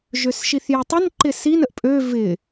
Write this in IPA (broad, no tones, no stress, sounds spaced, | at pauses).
ʒ ø s ʃ i θ j ɛ tˤ ə n ǃ ɪ s i n ə ʔ pʼ ø v ɪ